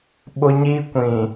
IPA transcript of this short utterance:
ɓ ʊ˦ ɲ i˦ kʷ ĩ˨

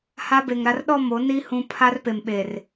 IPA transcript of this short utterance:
h a˦ b e˨ ŋ ɾ a˦ r ɗ ɔ˦˨ m o˨˦ n i˦ h ũ˦ pʰ a˦ r p e˨ m ɓ e˨ r

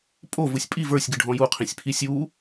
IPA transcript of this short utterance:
pʼ o v ɯ sʲ pʼ i v ə˞ sʲ ɡ ɨ ɖʱ ɔ̃ j u qʰ ĩ sʲ pʰ i sʲ u

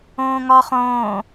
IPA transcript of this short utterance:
õː ŋ ɒ χ õː

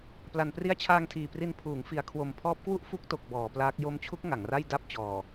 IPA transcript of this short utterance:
p l a˩˦ n p r i˦˥ a̯ t͡ɕʰ aː˧ ŋ tʰ iː˨˩ p r i˧ n pʰ uː˩˦ ŋ f i˩˦ a̯ kʰ w o˨˩ m pʰ ɔː˦˥ p̚ k w u˥˩ ʔ f u˥˩ k̚ t o˨˩ k̚ b ɔː˩˦ p l aː˦˥ k̚ j o˦˥ m t͡ɕʰ u˦˥ k̚ ŋ a˩˦ ŋ r a˥˩ j d a˥˩ p̚ t͡ɕ ɔː˨˩

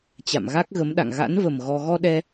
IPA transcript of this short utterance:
t͡ɕ a̰˧˨ m ɣ a˦˥ k̚ ɣ ə˨˦ m ɗ a̰˧˨ ŋ ɣ a̰˧˥ n v ə˨˩ m ɣ ɔ˧ ɣ ɔ˧ ɗ ɛ˧

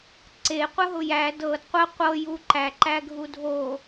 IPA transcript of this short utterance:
ǀ e qʷ ə ɦ ʊ j æ d ɤ d qʷ ə qʷ ɤ j u ǃ æ ǃ æ ɡʱ u dʱ o

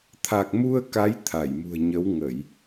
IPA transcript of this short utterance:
t̪ʰ a˨˩ k̚ m u˧ ə̯ k a˨˦ j t̪ʰ a˧˩ j m ṳ˨˩ ə̯ ɲ ə˨˦ w ŋ ə˧˩˨ j

